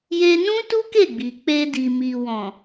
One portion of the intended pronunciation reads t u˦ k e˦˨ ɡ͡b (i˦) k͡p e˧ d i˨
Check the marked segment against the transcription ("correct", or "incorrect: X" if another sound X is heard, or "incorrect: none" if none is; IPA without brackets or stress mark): incorrect: i˨